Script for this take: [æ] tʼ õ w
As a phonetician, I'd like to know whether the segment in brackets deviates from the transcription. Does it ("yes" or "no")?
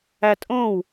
no